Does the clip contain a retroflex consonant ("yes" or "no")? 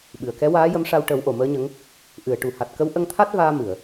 yes